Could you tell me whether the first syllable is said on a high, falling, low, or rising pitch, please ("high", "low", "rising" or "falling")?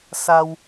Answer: high